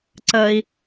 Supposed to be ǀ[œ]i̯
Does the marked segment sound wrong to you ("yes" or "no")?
yes